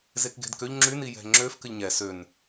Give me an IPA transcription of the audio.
z e k ɡ e̤ d k ø ʎ ŋ͡ǁ y n i j ɛ̤ ŋ͡ǁ ø f k ɘ ʎ ɲ ɛ s ø n

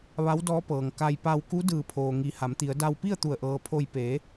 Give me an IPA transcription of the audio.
ʋ a˧˥ w d ɔː˧˥ p ɤː˩ ŋ k a˧ j p a˧ w k u˧˥ d ɯː˧˩ pʰ oː˩ ŋ i˩˧ h a˩˧ m t̪ i˩˧ ə̯ d a˧ w p i˥˨ ə̯ t̪ u˧˩ ə̯ ʔ ɤː˩ pʰ o˧˩ j p eː˩˧

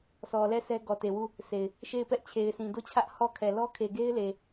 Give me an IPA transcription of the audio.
sʰ ɔ˨ l ɛ˦˨ sʰ ɛ˦ ɡ ɔ˨ t e˨ w u˦˨ | sʰ e˨ ɪ̯ | ʃ e˦˨ ɪ̯ p ɛ˦ ʔ t͡ɕʰ e˨ ɪ̯ s ĩ˨ d o˦˨ t͡ɕʰ ä˦ ʔ h ɔ˦˨ kʰ ɛ˨ l ɔ˦ kʰ e˨ ɡ e˦ ɪ̯ l e˨

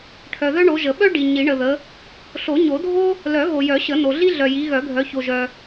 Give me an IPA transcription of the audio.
ʈʰ œ˨ ð œ˥ ɳ o˨˦ ʒ ə˨˩˦ ɓ œ˥ ɖ i˨ ɲ i˨˩˦ ɳ ə˨ ð ə˨˦ | ɬ o˨˩˦ ɲ o˨˩˦ dʱ o˥ | l œ˨˩˦ ɣ o˨ j œ˨˩˦ ɕ ə˨˩˦ n o˨ ɮ i˥ ɮ œ˨ j i˨˦ ɣ œ˨˩˦ ɡʱ œ˨˦ ç o˨ ʒ œ˨

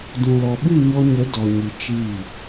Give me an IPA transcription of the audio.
d ũ˨ l ɔ˨ ɓ ɨ˦˨ ɲ ɔ˧ ɲ ə˨˦ d ɔ˨ ɲ ɨ˨ t͡ʃ iː˦˨

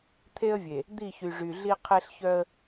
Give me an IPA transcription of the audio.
t̪ʰ e˦ ə̯ vʲ e˨ | d̪ i˦˨ ç y˨ ʐ y˨ ɮ i˦ qʰ e˦ ɬ ç œ˦ ə̯

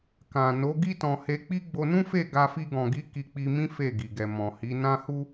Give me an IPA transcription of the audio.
k ã˨ n o˨˦ ɡ i˦ t ɔ̃˧ h e˧ k͡p i˦ ɡ͡b o˧ n ũ˦ f e˦˨ ɡ a˧ f i˧ ɡ ɔ̃˨ ɡ i˨˦ k i˧ k͡p i˧ m ĩ˦ f e˦˨ ɡ i˨ ɡ ɛ˨ m ɔ̃˨ h i˨˦ n ã˦ h u˦

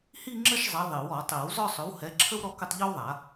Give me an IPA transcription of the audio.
h i˥˧ ŋ͡ǁ ə˥˧ ʃ zˤ ɛ˨˥ ðˤ i˨˩˦ w ɔ˨˩˦ tˤ i˨˩˦ w z ɔ˥˧ sˤ ʏ˨˥ w h ɛ˨˥ ǁʰ ə˥ w ɾ ɔ˥˧ k ə˥˧ tˤ ʎ ɔ˥ w ðˤ a˨˩˦

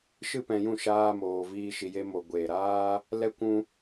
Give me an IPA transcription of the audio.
ʃ ɨ˦ p ɛ̃˧ j ũ˦˨ ʃ aː˦ m oː˧ v iː˦ ʃ i˧ j e˦ m o˧ ɡʷ eː˨ ɾ aː˦ | l ɛ˦ kʷ ũ˦

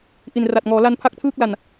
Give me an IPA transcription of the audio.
ʔ i˨˩ n r a˨˩ t̚ ŋ ɔː˩˦ l a˧ n pʰ a˥˩ k̚ tʰ ɯː˥˩ k̚ l a˨˩ n

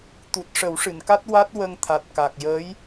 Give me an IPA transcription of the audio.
t̪ u˨˩ t̚ ʂ ə˨˩˦ w ʂ ɨ˨˩˨ n k a˦˥ t̚ w a˦˥ t̚ w ə˧ ŋ t̪ʰ a˨˩ t̚ k a˨˩ k̚ j əː˧˥ j

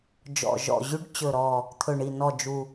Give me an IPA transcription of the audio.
d͡ʒ ɔ̰˨˩ ʒ ɔ̰˨˩ ʑ y˨˦ ɖ t͡ɕ ɵ˨˩ ɾ ɔ˨˩ | t̪ʰ ɵ˨˩ ɳ i˨˩ n ɔ˨˩ d͡ʒ u˨˩

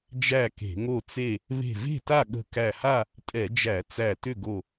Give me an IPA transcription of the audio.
d͡ʒ æ˥˨ k e̤˧˩˧ ŋ o˥˨ t͡s e˥˨ | β e̤˧˩ v e̤˥˨ t a˥˨ ɠ ə̤˧˩ k æ˧˩ h a˥˨ | tʼ ɛ˧˩˧ d͡ʒ æ˧˩˧ t͡s æ˧˩ t ʏ˥˨ ɡ o˧˩

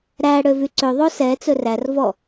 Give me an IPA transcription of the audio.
ɾ æ ɽ ø v y ǀ ø ðˤ o s ɛ t͡s ɵ r æ r v ɔ

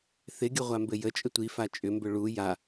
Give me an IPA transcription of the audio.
θ ɪ ɡʲ ə ʁʷ a m b ɘ j ə t͡ʃʼ ə tʷ i f a t͡ʃʼ ʏ m b ʏ ɭ u j a

